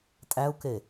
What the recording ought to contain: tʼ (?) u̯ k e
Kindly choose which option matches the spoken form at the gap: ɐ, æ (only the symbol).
æ